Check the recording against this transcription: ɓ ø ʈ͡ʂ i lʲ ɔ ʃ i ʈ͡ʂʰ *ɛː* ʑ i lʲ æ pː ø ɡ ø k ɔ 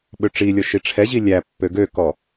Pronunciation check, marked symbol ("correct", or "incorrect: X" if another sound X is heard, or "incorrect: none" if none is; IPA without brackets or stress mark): incorrect: ɛ